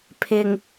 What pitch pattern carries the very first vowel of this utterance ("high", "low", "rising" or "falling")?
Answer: low